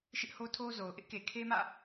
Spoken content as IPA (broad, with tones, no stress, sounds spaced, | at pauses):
ʃ ɪ˦ ʔ h o˦ tʰ o˦ z o˨ ʊ̯ ʔ ɪ˦ ʔ k e˨ kʰ e˦ m ä̰˦˨